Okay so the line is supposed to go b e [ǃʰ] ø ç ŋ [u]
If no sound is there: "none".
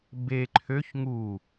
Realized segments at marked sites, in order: ǃʰ, u

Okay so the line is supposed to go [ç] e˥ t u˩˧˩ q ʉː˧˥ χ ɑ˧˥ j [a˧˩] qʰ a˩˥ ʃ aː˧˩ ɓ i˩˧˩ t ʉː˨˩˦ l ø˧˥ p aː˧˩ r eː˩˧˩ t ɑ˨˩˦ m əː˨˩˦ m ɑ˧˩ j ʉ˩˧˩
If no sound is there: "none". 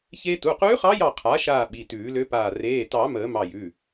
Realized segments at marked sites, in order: ç, ɑ˧˩

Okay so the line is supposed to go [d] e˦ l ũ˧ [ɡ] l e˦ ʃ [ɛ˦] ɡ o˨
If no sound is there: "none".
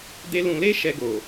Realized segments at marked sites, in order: d, none, ɛ˧

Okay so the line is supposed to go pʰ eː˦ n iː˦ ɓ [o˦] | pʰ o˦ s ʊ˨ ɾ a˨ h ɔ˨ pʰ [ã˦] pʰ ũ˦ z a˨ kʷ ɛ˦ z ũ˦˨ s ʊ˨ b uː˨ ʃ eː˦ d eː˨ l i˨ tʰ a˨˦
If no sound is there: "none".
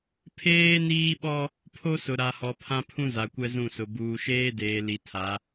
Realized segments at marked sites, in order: ɔ˦, ã˦

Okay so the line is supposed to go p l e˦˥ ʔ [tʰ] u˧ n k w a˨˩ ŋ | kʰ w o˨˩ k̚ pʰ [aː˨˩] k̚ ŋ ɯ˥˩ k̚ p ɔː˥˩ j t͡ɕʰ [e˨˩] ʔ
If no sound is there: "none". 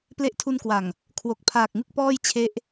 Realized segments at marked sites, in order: tʰ, aː˨˩, e˦˥

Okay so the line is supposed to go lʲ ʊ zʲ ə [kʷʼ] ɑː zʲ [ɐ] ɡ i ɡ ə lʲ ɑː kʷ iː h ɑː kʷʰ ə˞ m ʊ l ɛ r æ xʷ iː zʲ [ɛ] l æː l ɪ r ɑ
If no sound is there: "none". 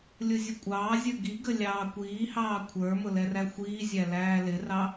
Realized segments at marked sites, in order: kʷʼ, ə˞, æ

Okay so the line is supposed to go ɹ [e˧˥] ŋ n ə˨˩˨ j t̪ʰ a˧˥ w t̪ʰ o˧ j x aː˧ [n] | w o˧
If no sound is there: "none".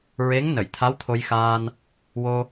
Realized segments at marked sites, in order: e˧˥, n

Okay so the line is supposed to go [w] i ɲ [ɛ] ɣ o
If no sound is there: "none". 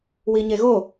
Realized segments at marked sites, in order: w, e

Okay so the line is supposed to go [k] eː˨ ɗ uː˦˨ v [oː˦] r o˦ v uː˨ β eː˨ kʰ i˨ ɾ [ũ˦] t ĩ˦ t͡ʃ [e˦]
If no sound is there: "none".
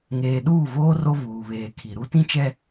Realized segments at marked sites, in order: ŋ, oː˦, u˦, ɛ˦

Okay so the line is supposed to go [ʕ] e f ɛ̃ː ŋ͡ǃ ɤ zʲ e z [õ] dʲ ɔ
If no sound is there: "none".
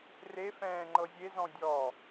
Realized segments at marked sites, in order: r, ɔ̃

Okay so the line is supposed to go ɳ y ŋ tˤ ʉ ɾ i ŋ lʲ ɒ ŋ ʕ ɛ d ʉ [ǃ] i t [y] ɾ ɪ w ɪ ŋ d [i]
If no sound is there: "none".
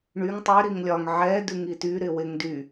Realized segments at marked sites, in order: ŋ, y, y

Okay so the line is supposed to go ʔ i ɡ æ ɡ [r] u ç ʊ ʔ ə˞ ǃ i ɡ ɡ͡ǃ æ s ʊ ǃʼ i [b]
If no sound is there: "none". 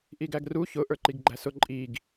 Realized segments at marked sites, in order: r, ɡ

